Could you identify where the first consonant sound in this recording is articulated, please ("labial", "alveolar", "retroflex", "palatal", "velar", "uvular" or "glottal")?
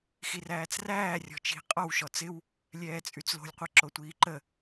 velar